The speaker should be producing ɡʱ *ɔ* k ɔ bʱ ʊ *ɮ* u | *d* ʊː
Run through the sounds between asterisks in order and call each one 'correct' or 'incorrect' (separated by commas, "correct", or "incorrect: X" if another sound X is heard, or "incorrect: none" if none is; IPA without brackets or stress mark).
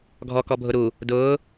correct, incorrect: ɾ, correct